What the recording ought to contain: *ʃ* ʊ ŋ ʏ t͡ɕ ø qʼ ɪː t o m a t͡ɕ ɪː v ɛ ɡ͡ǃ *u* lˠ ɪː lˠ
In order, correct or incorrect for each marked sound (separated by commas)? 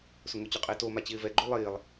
incorrect, correct